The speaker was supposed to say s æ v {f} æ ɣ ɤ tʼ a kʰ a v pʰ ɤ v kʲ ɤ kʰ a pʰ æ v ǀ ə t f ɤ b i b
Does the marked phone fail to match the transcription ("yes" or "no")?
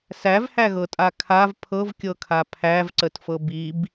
yes